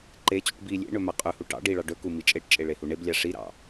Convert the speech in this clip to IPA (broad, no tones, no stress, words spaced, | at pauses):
ǃet͡ɕuʈ bi lʲḛɳɵ maqʼʉhu ʈɑ̰ ɖiɭɑ ɖɵku mit͡ʃʼeʈt͡ʃʼe ɭehuɳeblʲɑ ʂiɾɑ̰